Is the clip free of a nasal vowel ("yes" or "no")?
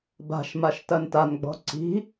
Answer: yes